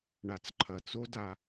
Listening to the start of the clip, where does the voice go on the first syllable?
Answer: low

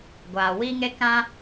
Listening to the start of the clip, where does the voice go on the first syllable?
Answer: low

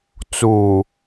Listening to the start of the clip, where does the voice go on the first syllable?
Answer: low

